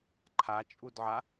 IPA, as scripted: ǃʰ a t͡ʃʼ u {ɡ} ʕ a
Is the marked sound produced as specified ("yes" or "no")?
no